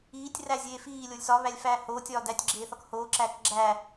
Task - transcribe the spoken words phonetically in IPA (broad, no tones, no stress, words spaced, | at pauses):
iːtʲræ zʲeːfiːlʲolʲ sɒβælʲ fæːhoːtʲɒː dætʲɡ͡ǁeː θɒkhoːǁæːk ɡ͡ǁæː